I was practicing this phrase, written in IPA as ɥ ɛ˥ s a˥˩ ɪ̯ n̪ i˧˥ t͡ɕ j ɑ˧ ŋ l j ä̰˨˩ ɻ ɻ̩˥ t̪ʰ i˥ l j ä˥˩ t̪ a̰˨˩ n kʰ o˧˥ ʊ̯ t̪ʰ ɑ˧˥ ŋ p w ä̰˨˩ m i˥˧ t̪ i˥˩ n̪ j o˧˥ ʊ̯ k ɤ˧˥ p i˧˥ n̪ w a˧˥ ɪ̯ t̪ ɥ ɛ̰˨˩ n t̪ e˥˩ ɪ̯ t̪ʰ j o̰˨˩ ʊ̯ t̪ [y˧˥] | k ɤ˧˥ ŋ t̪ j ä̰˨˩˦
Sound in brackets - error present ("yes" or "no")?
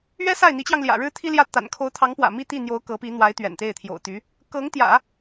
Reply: no